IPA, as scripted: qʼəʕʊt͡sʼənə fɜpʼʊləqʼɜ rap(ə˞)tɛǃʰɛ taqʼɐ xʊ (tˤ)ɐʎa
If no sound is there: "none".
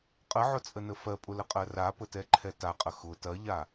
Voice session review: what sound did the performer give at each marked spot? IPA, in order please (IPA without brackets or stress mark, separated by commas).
ə, t